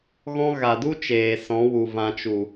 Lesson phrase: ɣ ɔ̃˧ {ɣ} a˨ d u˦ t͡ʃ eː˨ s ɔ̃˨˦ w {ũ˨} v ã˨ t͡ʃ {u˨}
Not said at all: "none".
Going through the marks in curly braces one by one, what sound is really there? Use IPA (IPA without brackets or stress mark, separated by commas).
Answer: ɣ, u˨, u˨